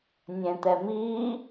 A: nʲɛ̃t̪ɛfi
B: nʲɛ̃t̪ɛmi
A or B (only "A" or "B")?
B